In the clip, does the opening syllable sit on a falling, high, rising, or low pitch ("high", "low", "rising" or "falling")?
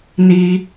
high